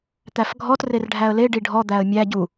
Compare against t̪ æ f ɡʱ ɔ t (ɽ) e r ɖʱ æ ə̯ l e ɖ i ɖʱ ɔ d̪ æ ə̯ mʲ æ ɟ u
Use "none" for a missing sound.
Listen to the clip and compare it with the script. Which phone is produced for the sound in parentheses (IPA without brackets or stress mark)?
r